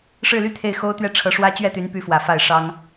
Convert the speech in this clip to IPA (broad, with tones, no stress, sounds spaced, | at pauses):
ʂ ɻ̩˥˧ l y˥˧ t̪ʰ e˥˩ ɪ̯ x o˥ ʊ̯ t̪ ɥ ɛ˥˩ ʈ͡ʂʰ ɤ˧˥ ʂ w ä˥ t͡ɕ ɥ ɛ˥˩ t̪ y˧˥ n p y˧˥ f w ä˨˩ f a˥˩ ɪ̯ ʂ ɑ˥ ŋ